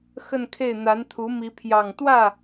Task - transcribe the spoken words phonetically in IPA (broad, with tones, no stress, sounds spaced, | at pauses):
x ə˥˧ n kʰ e˥˩ ɪ̯ n̪ a˧˥ n t̪ʰ u˧˥ m i˧˥ pʰ j ɑ˨˩ ŋ t̪ w ä˥˩